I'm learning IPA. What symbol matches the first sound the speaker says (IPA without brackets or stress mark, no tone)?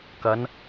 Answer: k